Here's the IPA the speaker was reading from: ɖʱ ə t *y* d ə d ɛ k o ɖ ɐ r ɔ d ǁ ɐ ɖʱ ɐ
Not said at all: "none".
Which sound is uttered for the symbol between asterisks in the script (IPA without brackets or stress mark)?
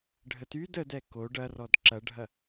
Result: y